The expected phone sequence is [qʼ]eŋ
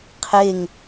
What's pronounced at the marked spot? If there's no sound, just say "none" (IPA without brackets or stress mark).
qʰ